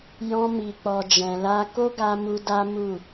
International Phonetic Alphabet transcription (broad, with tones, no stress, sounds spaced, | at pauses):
j ɔ̃˧ m i˨ k͡p ɔ˨ d͡ʒ ɛ̃˨ l a˧ k o˦ ɡ a˧ m u˧ d a˦ m u˦˨